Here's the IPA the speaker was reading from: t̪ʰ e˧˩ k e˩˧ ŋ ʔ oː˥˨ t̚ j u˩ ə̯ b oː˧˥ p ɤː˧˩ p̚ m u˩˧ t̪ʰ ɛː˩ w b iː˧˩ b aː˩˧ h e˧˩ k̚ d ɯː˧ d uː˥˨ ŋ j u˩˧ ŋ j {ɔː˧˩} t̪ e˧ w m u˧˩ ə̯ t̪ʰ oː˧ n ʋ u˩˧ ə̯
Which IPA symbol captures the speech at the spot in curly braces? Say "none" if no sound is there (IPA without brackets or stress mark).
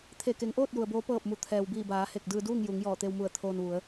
ɔː˧˩